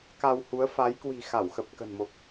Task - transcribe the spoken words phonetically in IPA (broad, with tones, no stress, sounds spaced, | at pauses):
k a˧ w h u˨˦ ə̯ f a˨˦ j k w i̤˨˩ x a˧˩ w x ə˨˩ p̚ k ə̤˨˩ n m o˨˩ k̚